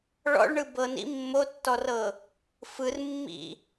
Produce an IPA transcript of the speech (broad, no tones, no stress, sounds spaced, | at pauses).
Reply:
ɭ ɔ̰ ɭ ɳ ɯ b ɤ n ḭ mː o tː ɔ r ɤ | f ɯ r mː ḭ